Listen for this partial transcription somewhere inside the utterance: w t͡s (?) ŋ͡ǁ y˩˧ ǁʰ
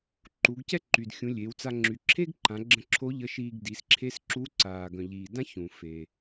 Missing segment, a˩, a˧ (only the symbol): a˧